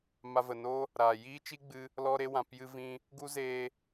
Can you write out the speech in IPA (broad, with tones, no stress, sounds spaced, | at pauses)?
m a˧ v ə˨ n oː˦ | ɾ a˨ j iː˦ t͡ʃ i˦ ɡ͡b ɨ˧ | l ɔ˧ ɾ e˧ w ã˨ p j ɨ˧ v ĩ˧ | ɡ u˦ z eː˧